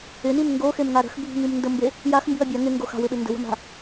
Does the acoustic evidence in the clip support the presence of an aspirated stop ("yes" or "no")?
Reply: no